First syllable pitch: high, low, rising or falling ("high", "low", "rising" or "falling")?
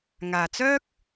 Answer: low